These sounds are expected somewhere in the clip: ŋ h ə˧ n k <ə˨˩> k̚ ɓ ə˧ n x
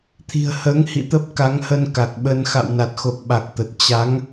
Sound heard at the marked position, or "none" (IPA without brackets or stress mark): a˨˩